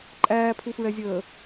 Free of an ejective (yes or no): no